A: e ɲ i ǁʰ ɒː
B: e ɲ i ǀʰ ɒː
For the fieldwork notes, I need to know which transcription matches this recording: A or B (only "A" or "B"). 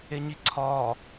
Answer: B